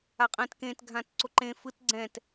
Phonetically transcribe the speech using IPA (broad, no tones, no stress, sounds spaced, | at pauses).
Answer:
a qʼ ɛ̃ t k ẽ t ɡʱ ã t ǀ o ǃ ẽ f ɯ t ɡ͡ǀ ɛ̃ t